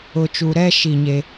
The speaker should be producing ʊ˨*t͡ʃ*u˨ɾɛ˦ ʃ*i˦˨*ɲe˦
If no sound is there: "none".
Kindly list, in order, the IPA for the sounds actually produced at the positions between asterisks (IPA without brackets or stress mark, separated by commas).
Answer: t͡ʃ, i˦˨